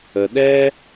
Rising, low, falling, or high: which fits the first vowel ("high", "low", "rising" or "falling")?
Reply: low